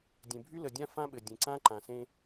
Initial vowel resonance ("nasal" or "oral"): nasal